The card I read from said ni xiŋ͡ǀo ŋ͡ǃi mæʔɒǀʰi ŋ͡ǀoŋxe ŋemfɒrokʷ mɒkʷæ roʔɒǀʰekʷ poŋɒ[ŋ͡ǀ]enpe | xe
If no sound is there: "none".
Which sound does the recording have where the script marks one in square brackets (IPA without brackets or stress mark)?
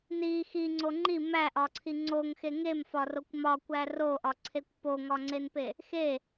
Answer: ŋ͡ǀ